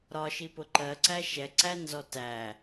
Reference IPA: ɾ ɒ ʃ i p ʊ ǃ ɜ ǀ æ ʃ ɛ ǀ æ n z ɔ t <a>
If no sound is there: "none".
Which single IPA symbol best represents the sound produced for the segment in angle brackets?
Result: æ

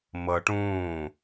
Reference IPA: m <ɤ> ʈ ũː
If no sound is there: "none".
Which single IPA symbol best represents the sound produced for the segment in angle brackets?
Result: ɤ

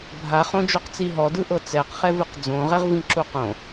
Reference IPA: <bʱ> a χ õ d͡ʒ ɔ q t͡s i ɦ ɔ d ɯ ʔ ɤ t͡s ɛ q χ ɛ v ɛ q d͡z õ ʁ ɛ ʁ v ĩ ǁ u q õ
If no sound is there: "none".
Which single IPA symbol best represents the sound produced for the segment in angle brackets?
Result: bʱ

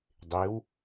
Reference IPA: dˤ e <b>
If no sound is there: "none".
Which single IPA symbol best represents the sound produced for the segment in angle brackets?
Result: w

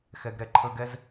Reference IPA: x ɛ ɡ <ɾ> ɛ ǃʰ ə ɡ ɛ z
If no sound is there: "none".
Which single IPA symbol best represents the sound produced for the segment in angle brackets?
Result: ɾ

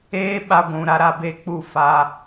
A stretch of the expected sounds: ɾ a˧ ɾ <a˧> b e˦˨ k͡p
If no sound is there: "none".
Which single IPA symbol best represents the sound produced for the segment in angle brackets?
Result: a˧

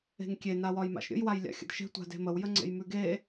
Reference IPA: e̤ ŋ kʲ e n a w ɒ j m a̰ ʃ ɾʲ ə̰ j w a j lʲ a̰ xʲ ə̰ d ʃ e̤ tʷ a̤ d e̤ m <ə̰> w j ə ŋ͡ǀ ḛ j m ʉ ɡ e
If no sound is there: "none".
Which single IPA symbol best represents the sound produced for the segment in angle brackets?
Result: ə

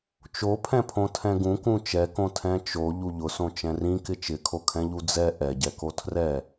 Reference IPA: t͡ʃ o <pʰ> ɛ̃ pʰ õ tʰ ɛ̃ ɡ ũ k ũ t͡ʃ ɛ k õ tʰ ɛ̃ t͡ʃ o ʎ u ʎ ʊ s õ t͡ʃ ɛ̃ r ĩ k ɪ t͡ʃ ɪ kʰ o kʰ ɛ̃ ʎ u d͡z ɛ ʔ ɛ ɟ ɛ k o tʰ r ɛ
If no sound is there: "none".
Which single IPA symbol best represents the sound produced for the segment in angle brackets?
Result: pʰ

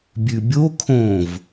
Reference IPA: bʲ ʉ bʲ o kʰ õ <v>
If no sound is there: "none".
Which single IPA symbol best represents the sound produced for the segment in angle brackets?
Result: v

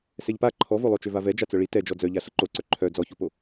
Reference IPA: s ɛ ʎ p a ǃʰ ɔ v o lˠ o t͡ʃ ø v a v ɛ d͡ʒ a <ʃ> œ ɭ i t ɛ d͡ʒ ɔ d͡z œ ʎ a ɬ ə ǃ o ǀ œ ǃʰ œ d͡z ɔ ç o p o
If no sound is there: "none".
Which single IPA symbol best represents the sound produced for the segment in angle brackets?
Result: t͡s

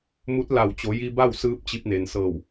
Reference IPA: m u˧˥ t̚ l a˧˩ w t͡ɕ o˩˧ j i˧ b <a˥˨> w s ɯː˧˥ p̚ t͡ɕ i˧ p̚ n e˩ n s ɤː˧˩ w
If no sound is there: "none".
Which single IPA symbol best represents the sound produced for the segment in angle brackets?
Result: a˥˨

